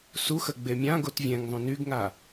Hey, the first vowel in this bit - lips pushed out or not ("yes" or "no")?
yes